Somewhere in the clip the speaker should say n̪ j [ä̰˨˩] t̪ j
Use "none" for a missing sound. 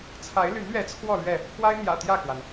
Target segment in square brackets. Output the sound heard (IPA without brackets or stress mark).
ä̰˨˩